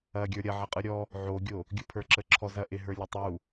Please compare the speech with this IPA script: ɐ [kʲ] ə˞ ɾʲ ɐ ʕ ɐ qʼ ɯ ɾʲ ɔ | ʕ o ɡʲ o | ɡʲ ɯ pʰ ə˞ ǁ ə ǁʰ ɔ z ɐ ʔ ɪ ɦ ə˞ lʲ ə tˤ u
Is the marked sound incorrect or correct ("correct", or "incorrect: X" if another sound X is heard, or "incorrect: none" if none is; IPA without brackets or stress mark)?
incorrect: ɡʲ